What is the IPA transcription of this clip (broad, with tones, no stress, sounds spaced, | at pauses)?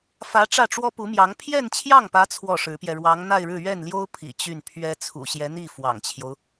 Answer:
f ä˧˥ ʈ͡ʂ ä˥˩ ʈ͡ʂ w ɔ˥ p u˧˥ m j ɑ˧˥ ŋ pʰ j ɛ˥˧ n t͡ɕʰ j ɑ˥˩ ŋ p ä˧˥ t͡sʰ w ɔ˥˩ ʂ ɻ̩˧˥ p j ɛ˧ ɻ w ɑ˧˥ ŋ n̪ a˥˧ ɪ̯ ɻ ɻ̩˥˧ ɥ ɛ˥˩ n l j o˥ ʊ̯ pʰ ḭ˨˩ t͡ɕ y˥˩ n pʰ ɥ ɛ˥ t͡sʰ ṵ˨˩ ɕ j ɛ˧˥ n̪ i˥˩ f w ɑ̰˨˩ ŋ t͡ɕʰ j o˦ ʊ̯